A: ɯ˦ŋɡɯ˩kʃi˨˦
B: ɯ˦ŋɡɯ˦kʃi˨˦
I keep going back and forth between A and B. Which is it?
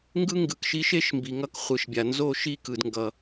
A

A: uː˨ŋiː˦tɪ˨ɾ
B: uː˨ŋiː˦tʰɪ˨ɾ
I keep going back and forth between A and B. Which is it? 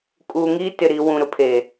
A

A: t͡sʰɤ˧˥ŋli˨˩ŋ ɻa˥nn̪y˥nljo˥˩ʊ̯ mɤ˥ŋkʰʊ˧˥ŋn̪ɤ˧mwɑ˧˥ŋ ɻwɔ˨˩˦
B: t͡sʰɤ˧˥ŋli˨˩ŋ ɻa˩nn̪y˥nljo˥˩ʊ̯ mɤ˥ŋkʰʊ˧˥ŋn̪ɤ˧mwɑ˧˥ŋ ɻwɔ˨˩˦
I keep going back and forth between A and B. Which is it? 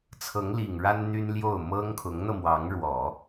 A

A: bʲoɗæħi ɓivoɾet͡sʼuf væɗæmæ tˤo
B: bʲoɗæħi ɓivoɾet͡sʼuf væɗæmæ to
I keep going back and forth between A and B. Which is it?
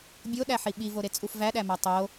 A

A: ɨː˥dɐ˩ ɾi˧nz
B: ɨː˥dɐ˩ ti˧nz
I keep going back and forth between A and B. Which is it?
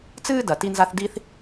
B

